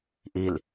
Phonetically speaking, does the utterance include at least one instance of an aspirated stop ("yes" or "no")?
no